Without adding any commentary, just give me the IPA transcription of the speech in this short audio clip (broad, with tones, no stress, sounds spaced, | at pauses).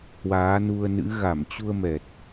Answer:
h w aː˨˦ n u˧ ə̯ n ɨ̰˧˥ ɣ a˧˩ m t͡ɕ u˧ ə̯ m ɛ˨˩ t̚